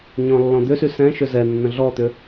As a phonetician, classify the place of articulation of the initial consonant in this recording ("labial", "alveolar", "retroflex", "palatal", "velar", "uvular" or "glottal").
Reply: palatal